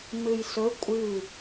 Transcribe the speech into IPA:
m ɨ j s ɵ kʷʼ ɨ

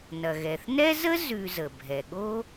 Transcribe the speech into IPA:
n ɐ˩ ɣ ɛ˩ θ n ɛ˥ z ə˥ z ʉ˨ z ə˩ bʱ ɛ˩ ɠ o˥

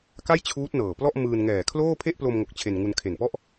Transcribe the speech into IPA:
k a˥˩ j t͡ɕʰ uː˦˥ t̚ n ɤː˨˩ p l ɔ˥˩ ʔ m ɯː˧ n ŋ ɛː˨˩ kʰ l oː˥˩ pʰ e˥˩ ʔ p l o˧ m ŋ o˨˩ k̚ t͡ɕʰ e˧ n ŋ u˧ n kʰ e˨˩ n p ɔ˥˩ ʔ

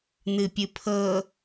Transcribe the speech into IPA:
n̪ ɨ pʲ ɨ pʰ ɤ

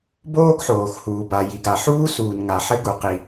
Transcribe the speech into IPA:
b oː˥ ɡ ħ oː˩ x h uː˩ b a˩ j i˩ ɡ a˩ ħ uː˥ s uː˩ n ŋ a˩ ħ ɘ˥ ɡ u˩ q i˩

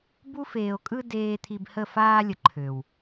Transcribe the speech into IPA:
b u˦ f eː˨ o̯ kʼ ɯ˧ d eː˧ t̪ʰ i˧ b h ə˦˨ f aː˧ lʲ ə˨ ǃʰ ø˨ w

